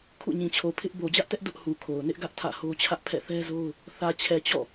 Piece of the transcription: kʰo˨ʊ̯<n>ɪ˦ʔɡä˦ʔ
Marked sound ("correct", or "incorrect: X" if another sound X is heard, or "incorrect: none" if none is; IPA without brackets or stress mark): correct